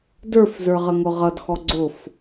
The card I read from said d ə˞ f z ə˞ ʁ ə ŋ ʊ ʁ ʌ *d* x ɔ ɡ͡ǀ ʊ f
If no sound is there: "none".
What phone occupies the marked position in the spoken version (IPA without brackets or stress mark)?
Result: d